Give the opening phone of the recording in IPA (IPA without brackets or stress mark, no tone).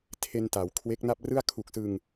tʰ